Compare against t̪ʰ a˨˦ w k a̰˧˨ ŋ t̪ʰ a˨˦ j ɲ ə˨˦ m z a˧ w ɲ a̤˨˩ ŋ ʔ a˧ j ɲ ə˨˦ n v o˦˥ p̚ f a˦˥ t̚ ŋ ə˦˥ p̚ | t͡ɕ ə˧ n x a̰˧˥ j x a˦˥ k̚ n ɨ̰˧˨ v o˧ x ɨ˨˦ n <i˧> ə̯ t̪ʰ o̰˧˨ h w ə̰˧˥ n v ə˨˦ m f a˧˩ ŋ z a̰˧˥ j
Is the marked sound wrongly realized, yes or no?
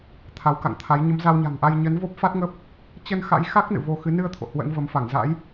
yes